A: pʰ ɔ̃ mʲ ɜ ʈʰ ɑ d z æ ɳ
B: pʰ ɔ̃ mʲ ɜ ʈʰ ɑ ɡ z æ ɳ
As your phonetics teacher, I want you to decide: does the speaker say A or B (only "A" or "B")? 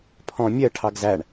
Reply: B